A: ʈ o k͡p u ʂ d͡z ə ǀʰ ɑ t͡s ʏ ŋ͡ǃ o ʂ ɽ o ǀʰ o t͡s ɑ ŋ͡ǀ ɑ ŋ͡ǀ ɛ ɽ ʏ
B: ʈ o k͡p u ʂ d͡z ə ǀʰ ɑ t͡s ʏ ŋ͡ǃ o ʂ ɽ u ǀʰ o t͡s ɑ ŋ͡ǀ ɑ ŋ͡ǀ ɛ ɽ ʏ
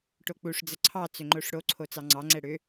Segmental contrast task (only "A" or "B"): A